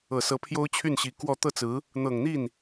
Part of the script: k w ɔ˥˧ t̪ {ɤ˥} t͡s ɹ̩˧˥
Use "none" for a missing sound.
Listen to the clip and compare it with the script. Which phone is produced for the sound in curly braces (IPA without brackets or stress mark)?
ɤ˥˩